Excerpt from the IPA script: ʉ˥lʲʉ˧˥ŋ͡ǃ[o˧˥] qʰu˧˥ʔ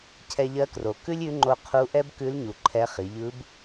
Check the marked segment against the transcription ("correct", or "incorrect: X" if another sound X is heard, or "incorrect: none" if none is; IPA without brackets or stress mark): incorrect: o˧